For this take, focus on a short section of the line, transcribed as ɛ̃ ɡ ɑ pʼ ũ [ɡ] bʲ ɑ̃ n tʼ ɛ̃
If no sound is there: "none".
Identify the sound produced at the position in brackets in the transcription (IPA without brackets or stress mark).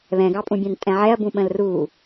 none